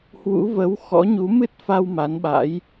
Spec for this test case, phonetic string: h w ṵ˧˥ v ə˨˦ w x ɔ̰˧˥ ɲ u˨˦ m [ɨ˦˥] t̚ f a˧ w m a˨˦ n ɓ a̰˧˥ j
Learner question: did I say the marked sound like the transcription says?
yes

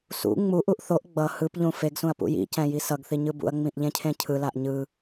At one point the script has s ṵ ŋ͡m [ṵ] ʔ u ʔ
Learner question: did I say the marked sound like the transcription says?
no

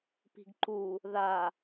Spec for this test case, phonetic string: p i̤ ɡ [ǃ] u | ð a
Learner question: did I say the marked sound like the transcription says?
yes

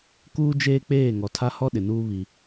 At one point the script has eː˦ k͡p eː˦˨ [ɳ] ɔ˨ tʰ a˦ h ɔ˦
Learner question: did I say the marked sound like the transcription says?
no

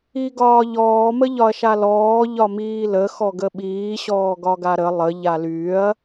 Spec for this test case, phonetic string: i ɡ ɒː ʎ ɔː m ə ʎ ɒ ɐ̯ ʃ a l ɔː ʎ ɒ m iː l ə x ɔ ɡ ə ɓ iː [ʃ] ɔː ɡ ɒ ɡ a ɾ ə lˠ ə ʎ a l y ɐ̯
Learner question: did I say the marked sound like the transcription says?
no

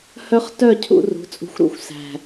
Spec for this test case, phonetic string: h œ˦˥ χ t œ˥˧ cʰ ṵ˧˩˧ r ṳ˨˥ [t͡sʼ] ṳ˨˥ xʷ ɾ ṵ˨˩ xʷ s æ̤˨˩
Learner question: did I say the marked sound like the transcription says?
yes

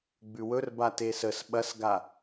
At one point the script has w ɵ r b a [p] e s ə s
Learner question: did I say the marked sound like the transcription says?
no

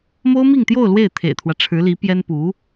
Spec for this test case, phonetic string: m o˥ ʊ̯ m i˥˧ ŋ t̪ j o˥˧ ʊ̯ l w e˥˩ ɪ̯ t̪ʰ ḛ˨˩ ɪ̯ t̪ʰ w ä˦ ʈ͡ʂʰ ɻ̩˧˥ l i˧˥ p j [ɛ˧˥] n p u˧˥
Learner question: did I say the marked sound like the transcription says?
no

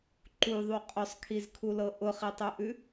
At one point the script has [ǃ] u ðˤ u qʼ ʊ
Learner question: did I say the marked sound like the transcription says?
yes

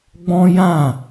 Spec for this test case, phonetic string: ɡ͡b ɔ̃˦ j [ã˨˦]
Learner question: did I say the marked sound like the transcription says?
no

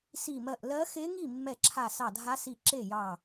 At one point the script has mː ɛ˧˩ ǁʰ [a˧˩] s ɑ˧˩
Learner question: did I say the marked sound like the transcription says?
yes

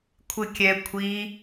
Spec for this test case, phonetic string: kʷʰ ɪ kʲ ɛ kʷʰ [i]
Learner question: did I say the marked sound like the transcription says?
yes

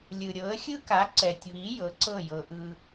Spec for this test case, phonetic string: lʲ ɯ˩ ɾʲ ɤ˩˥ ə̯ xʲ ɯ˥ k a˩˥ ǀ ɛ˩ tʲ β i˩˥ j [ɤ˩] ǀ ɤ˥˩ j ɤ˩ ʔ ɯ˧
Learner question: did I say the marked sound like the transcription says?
no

